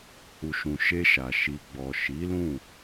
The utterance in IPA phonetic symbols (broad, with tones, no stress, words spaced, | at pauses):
hu˨ʃũ˨ ʃe˧ʃa˨ ʃi˨ɡ͡bɔ˨ ʃi˨˦lũ˦˨